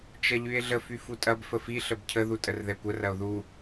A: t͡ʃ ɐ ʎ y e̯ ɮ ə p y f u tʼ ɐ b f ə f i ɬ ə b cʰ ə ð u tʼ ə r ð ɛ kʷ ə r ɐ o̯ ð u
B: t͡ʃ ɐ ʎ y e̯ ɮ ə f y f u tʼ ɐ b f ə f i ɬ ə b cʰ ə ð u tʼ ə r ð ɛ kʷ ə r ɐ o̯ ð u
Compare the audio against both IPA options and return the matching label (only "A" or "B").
B